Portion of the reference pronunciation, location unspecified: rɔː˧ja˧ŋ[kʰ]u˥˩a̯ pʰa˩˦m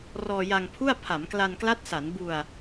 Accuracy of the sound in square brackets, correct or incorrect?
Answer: incorrect